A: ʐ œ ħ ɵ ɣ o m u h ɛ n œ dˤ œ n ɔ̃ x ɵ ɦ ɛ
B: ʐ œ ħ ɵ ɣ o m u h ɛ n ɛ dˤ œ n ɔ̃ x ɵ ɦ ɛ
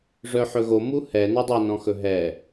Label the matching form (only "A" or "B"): A